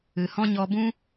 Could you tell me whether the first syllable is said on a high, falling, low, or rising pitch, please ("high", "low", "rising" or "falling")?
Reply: low